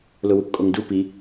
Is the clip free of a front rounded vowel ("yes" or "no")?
yes